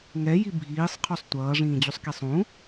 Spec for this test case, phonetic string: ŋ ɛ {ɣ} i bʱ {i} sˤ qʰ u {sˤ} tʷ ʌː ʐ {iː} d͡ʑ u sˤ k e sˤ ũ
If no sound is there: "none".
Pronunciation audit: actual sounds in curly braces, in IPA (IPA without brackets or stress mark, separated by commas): j, iː, sˤ, ĩː